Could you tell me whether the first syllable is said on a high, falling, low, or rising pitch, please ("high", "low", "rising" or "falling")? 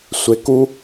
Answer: low